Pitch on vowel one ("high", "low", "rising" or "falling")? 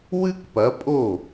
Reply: high